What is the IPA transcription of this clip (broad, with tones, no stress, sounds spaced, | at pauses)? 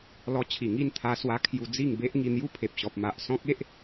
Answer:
l ɔ˧ t͡ɕʰ i˨˩ ŋ i˥˧ n t̪ʰ a˧ s w a˧ kʰ j u˧ d͡z i˥˧ ŋ b e˦ ʔ ŋ i˧ n̪ j u˦ pʰ e˨ p̚ ɕ ɔ˨ p̚ m a˨ ʔ s ɔ̃˦ k̚ e˦ ʔ